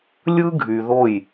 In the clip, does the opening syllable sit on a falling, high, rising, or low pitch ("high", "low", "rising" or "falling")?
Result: high